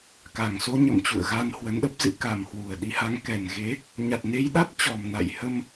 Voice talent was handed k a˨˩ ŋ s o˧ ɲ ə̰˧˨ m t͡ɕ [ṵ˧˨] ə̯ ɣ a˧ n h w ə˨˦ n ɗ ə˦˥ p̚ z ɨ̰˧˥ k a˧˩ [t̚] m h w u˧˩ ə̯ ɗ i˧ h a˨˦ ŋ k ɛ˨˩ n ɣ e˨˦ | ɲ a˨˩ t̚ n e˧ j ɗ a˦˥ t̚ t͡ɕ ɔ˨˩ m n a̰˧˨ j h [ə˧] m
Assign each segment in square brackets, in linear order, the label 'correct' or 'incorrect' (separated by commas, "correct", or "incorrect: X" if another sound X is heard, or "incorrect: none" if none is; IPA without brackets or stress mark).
correct, incorrect: none, correct